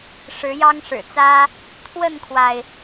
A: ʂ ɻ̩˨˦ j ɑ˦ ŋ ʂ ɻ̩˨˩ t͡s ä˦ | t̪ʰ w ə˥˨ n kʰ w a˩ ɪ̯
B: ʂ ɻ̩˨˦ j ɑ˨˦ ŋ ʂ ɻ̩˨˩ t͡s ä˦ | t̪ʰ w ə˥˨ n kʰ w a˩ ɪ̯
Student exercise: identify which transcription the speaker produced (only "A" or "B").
A